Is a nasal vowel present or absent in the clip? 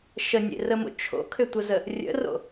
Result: absent